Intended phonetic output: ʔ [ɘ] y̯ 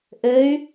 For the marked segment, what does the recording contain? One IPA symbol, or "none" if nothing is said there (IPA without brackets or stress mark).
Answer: ɘ